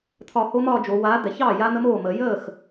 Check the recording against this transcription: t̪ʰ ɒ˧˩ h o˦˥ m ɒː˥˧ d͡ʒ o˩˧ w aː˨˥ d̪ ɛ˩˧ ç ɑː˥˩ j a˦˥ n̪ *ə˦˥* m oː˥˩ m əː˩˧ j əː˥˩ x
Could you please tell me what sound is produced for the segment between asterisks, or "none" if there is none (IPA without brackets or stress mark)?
ə˦˥